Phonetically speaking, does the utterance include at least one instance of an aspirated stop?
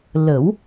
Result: no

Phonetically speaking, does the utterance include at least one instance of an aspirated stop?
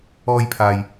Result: yes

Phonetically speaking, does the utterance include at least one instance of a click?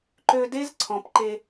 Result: yes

